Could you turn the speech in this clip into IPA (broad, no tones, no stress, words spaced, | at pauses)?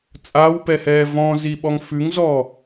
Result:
t͡sʼawpɛhɛː vɔ̃ziɓɔŋ fʉŋzɔ